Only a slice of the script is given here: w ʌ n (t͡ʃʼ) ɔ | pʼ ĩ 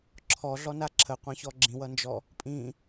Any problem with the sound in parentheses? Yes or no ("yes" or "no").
yes